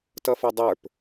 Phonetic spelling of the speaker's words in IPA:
t ʌ f ʌ dˤ ə˞ p

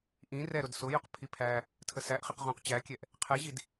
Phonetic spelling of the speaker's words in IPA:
ʔ ĩ r ɛ ɾ ʊ d s ʊ j ʊ q pʰ i pʰ æ | tʰ ə s æ ʔ χ i q ʁ ũ q t͡ɕ æ kʲ ɛ ʔ | qʰ ɛ ʑ i d

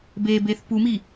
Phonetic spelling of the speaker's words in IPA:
b e b e θ p u m i

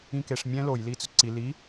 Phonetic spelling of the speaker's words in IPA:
ĩ k e ʂ mʲ ɛ̃ l o j l i t͡s ɵ ǀ i l i

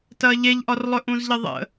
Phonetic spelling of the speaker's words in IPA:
t ɐː ʎ e ʎ ʔ ɒ r lˠ ɵ ʔ ũ z ʎ ə ðˤ ə̰

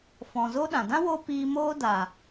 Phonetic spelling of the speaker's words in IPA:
f ɔ̃˨ z o˦ ɗ ã˨ d ã˦ w o˧ p iː˧ m oː˦ d aː˨

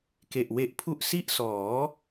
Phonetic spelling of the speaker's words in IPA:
k e˨˩ ʔ w e˦˥ ʔ pʰ u˥˩ ʔ s i˥˩ ʔ s ɔː˩˦

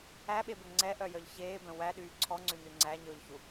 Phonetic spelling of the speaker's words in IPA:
æ ɓ e b ɵ ŋ͡ǀ ɛ ʔ œ j œ ʎ ç eː b œ̃ w æ ɗ yː ǀʰ ɔ ŋ͡ǀ ʉ n ʉ ŋ͡ǀ æ ɲ ɵː ʎ ç u

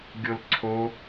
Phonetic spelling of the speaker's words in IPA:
ɡʲ o l ǀʰ o

